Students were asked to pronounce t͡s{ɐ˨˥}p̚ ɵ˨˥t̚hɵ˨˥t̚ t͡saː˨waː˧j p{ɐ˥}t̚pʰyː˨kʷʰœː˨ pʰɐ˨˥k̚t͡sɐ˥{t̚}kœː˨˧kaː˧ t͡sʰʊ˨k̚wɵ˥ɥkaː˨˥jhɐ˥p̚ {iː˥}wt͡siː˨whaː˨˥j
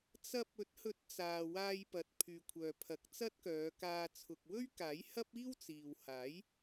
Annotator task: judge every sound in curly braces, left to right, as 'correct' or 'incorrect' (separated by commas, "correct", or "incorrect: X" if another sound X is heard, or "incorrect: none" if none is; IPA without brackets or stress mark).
incorrect: ɐ˧, incorrect: ɐ˨, correct, correct